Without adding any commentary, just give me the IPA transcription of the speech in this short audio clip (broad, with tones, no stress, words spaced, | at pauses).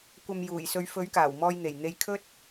kʷɐ˨m juː˨˩jsɵ˧ɥ fɵ˨˥ɥkaː˨˩wmɔː˧jn̪e˨˩j n̪e˧jkʰɵ˥t̚